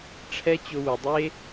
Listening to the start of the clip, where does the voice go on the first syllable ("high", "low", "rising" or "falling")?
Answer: high